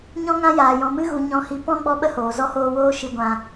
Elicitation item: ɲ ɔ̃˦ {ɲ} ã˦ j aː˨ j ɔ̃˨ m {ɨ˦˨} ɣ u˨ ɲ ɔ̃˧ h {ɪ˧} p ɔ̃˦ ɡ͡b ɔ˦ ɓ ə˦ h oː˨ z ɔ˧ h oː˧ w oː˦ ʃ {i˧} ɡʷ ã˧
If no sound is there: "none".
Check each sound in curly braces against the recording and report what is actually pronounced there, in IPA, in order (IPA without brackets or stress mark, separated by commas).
ŋ, ɨ˧, i˧, i˧